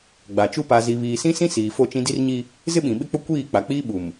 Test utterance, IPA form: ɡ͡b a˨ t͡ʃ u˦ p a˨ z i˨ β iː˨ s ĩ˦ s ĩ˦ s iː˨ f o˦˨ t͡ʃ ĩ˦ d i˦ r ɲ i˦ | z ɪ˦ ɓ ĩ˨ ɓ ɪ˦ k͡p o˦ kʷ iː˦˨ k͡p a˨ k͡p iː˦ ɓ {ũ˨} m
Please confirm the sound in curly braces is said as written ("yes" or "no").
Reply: no